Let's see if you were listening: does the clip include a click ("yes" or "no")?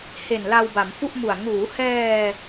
no